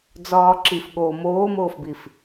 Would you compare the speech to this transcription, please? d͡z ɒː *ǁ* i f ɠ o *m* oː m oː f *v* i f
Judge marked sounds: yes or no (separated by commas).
yes, yes, no